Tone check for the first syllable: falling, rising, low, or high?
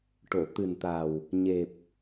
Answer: low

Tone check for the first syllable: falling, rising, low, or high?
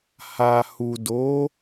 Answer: low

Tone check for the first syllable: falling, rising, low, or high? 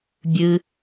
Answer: low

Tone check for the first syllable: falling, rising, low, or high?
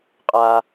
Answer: high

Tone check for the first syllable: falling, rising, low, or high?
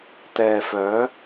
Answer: low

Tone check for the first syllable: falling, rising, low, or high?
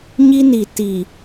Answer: high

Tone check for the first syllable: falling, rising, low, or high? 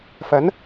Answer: rising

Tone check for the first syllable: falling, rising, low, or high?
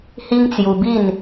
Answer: high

